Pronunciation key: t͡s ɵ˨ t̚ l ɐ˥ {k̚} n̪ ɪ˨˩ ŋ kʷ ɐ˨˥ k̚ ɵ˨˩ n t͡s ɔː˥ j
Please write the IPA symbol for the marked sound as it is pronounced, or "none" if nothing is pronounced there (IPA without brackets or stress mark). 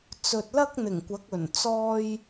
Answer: k̚